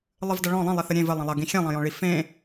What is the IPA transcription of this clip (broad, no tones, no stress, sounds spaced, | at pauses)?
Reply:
lˠ ɨ v d ɐ ɭ ɔ̃ lˠ ɐ̃ lˠ e θ ɘ ɾʲ ẽ v ɘ lˠ ɐ̃ lˠ ɐ ɡ ĩ xʲ ẽ lˠ ɐ̃ j ɔ̃ ɭ i f ẽ